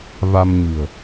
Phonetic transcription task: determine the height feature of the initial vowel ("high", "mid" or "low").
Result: low